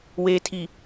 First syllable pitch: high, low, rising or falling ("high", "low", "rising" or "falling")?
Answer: low